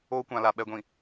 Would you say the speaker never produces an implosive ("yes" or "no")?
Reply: no